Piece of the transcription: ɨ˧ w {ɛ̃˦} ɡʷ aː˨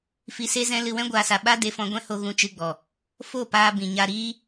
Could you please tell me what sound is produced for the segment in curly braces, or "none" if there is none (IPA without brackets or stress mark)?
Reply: ɛ̃˦